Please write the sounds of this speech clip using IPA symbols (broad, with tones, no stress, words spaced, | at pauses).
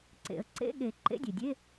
ǀḛ˨˩˦ə̯ǀḛ˧˥˧ɠe˨˩˦ ǃḛ˧˥˧dʲe˩dʲe˧˥˧